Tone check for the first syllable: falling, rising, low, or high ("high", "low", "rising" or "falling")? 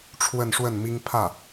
falling